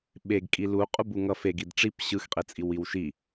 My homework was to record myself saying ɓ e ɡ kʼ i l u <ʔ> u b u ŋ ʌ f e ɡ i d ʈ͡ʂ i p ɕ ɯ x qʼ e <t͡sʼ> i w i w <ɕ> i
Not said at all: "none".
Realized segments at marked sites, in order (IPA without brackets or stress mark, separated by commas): qʼ, t͡sʼ, ʃ